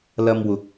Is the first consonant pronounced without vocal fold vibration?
no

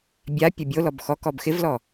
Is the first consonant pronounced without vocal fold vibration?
no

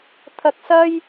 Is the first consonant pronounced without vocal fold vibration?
yes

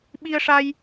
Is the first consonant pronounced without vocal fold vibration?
no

